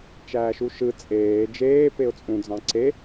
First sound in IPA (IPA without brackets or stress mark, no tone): t͡ʃ